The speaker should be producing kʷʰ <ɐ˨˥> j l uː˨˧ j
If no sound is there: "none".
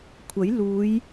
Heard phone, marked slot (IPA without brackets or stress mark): ɐ˨˥